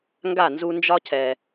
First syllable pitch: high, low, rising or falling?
falling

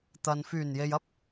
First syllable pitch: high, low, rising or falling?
low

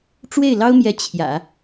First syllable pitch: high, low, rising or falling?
falling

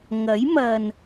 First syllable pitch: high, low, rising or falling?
rising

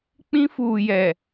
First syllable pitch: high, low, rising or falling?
high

